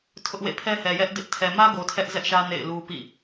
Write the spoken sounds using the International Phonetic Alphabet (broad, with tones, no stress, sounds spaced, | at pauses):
tʰ ʊ˦ ʔ w ḛ˦˨ pʰ ɛ˦ h ɛ˨ j ɛ˦ ʔ d ɪ˦ ʔ tʰ ɛ˨ m ä˦ ɡ o˨ tʰ ɛ˦ ʔ z ɛ˦ ʔ ʃ ä˦ n ḛ˦˨ ɪ̯ l u˦ p ḭ˦˨